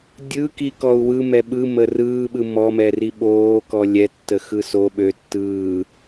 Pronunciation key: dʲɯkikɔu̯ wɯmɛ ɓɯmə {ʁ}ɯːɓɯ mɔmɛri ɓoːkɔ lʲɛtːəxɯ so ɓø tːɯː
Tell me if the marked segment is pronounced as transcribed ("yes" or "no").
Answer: no